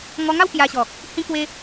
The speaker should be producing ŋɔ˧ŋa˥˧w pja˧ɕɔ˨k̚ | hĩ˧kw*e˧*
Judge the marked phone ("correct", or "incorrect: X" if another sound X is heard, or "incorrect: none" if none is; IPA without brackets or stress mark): correct